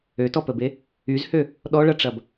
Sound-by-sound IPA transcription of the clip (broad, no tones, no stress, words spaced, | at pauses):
øtɔpəbe | yzhø | ɗɔɭɐʈ͡ʂɐb